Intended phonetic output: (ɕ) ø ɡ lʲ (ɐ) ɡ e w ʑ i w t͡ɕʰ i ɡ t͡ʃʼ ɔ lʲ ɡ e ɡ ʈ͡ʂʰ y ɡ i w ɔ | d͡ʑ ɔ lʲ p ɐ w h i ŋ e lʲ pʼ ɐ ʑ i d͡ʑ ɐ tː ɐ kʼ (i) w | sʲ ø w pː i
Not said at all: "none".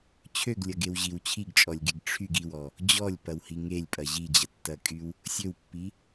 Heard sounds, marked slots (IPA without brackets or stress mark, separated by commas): t͡ɕʰ, ɐ, y